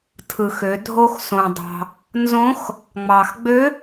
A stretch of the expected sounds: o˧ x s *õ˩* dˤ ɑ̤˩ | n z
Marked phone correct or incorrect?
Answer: correct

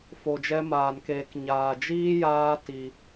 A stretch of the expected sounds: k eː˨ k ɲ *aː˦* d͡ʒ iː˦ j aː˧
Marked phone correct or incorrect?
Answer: incorrect: aː˨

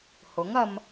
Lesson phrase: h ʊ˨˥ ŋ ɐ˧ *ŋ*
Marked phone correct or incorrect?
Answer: incorrect: m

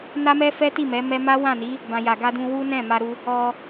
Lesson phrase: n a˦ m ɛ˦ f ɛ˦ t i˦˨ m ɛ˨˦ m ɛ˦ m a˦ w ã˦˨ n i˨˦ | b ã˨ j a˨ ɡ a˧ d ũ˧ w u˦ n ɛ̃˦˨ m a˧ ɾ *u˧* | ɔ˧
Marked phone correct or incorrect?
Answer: correct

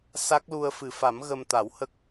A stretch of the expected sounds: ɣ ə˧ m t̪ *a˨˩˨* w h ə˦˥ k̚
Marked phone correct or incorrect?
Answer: incorrect: a˨˩˦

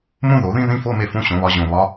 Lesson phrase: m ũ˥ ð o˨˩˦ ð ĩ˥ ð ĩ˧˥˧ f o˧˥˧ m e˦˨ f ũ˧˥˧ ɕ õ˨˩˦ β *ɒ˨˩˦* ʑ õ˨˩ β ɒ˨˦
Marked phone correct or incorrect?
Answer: incorrect: ɒ˨˦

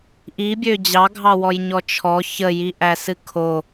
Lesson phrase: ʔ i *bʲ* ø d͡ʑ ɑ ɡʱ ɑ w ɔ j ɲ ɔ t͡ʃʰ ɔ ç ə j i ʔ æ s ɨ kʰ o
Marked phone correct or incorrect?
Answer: correct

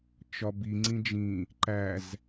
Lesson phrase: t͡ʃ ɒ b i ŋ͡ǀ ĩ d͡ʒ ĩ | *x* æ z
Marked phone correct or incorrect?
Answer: incorrect: ǃ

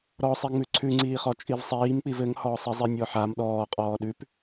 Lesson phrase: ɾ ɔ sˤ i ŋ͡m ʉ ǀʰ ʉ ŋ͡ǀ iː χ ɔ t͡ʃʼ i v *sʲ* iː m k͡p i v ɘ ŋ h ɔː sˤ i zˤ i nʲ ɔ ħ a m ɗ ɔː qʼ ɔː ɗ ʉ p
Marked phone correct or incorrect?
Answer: incorrect: sˤ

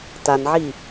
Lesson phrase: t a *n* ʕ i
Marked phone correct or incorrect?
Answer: correct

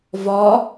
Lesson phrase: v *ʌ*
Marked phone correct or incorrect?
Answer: incorrect: ɒ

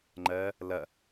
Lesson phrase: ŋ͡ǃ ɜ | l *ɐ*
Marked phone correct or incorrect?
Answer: correct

